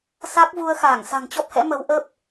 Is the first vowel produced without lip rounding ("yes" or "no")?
yes